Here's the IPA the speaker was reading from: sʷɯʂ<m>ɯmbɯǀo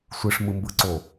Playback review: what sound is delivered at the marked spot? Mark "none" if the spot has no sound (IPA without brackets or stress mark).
m